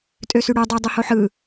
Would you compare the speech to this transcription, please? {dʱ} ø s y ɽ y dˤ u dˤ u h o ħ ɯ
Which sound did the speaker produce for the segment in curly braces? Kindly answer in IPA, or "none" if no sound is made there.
tʼ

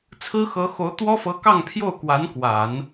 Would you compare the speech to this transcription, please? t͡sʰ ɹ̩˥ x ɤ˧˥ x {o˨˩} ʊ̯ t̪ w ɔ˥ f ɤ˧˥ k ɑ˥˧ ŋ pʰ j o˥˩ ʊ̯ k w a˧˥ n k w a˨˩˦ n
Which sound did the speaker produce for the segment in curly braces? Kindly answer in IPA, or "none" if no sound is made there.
o˧˥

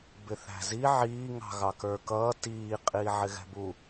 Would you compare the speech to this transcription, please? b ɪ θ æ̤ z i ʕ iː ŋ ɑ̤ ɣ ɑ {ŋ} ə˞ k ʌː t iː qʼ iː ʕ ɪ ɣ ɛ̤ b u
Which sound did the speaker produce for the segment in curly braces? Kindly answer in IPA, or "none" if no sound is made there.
k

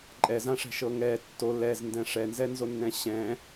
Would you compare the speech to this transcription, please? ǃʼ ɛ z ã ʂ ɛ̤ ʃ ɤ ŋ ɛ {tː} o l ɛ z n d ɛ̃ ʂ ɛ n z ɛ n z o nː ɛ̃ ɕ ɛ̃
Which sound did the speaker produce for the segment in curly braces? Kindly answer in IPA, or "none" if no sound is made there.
tː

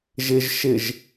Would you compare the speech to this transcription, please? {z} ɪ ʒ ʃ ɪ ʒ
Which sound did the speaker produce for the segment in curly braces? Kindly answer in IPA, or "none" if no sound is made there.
ʒ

